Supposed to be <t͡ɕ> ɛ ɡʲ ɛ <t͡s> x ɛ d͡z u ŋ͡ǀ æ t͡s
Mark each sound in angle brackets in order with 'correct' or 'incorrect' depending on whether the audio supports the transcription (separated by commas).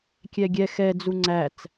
incorrect, incorrect